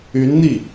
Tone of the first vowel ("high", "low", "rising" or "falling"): rising